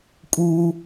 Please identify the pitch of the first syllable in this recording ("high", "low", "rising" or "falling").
low